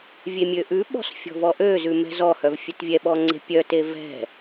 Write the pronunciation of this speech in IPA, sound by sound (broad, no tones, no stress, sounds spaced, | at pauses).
vʲ e mʲ ø ʔ ʉ ɓ ɔ̤ s fʲ ɔ̤ v ɔ ʔ ø z ʉ m ɛ̤ z ɔ h œ v fʲ ɛ t vʲ ɛ ɓ ɔ ŋ͡ǀ e̤ pʲ œ t e v ɛ̤